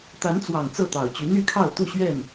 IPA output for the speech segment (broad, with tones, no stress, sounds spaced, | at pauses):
t̪ a˨˦ n t͡s w ɑ˨˩ ŋ t͡s ɤ˥˨ t̪ ɑ˨˩ ʊ̯ t͡ɕ y˨˦ n̪ y˥˨ kʰ ɑ˥˨ ʊ̯ t̪ u˥˨ ɕ ɥ ɛ˥˨ n